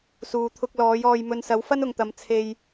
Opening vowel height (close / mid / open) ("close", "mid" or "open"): close